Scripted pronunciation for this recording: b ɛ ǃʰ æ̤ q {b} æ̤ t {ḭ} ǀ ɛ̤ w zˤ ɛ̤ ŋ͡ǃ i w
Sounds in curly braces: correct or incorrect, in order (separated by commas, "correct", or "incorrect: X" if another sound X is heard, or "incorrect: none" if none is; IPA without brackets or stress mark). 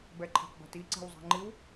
correct, incorrect: i